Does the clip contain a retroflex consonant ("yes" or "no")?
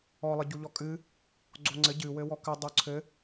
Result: no